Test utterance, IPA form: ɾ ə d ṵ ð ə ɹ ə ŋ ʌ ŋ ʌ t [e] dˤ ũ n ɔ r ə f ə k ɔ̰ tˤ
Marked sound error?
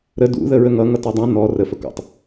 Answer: yes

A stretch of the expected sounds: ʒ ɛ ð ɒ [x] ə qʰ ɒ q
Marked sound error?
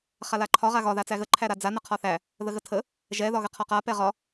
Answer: yes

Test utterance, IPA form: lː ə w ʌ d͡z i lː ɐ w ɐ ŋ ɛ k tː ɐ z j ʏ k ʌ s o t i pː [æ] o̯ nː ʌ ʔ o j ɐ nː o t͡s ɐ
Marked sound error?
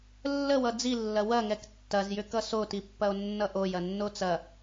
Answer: yes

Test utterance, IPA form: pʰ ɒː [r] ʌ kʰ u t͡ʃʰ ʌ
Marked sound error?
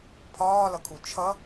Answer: yes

